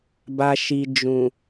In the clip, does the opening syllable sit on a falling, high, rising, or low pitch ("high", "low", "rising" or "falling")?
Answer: low